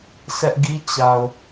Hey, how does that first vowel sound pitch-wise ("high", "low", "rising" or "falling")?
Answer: high